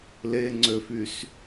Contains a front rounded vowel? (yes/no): yes